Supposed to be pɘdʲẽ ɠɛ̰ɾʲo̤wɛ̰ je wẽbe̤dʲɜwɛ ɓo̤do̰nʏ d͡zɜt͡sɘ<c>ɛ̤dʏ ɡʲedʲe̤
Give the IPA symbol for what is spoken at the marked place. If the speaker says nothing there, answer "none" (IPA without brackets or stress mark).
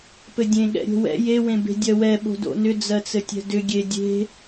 tʲ